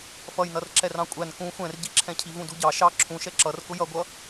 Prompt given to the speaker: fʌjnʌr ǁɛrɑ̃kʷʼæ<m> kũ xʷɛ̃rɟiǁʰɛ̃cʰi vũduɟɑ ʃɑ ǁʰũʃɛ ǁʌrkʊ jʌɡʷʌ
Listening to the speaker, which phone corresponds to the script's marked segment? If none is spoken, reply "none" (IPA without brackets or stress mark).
n